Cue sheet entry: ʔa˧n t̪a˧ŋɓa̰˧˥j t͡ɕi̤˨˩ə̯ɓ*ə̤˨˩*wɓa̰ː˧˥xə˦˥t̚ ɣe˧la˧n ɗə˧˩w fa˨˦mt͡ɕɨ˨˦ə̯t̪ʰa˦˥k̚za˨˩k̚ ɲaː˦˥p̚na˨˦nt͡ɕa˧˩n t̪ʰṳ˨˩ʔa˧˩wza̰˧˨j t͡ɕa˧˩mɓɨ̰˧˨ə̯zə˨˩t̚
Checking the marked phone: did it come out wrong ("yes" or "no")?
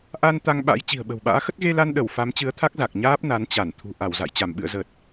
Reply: no